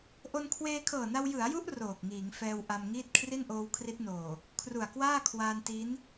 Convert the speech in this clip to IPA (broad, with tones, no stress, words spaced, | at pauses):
ʔo˧nkʰweː˧kʰɤː˨˩na˧w jɯ˩˦a̯ju˦˥ʔ roː˨˩k̚ŋiː˩˦ŋ fɛː˧w ʔa˧mŋiː˥˩t̚ kʰri˥˩nʔoː˧wkʰri˦˥t̚noː˨˩ | kʰru˨˩a̯kwaː˥˩kʰwaː˧n ti˦˥n